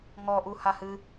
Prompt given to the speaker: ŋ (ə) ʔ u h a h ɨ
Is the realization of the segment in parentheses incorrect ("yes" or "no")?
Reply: yes